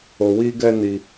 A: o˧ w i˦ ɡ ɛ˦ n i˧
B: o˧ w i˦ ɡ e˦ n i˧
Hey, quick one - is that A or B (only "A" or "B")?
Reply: A